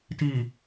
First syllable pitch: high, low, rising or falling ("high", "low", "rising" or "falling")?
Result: low